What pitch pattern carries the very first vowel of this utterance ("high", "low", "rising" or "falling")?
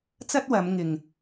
high